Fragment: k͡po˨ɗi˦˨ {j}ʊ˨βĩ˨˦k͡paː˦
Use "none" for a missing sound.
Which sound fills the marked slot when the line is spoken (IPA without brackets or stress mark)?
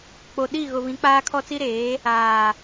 ɣ